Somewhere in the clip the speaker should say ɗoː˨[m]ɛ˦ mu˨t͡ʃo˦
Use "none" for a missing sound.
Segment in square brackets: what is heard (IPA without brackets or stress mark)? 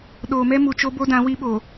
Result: m